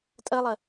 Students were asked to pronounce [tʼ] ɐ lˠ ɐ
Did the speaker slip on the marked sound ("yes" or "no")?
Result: no